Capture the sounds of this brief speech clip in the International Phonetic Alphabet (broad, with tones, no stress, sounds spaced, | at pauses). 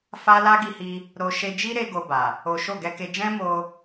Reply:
f a˦ l a˦ ɡ i˧ h i˧ | ɾ o˧ ʃ e˧ d͡ʒ i˦ ɾ e˧ ɡ o˧ b a˨ | o˦ ʃ o˦˨ ɡ ɛ˧ k e˧ d͡ʒ ɛ̃˦ m o˧